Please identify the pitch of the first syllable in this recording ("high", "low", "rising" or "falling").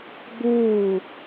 falling